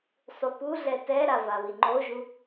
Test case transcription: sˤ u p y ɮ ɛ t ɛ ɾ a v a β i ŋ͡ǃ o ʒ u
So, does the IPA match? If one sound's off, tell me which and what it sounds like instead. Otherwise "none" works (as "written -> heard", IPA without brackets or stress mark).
y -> u